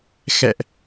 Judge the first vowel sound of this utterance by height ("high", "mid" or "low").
mid